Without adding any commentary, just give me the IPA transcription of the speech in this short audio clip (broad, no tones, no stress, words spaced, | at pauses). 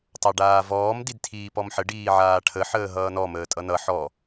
tˤaɖaːvɔːm didtʰiːpɔmħə ɖiːʕaːʈʰə ħəːɦʌːnɔ məːtʼʌnʌ ħɔ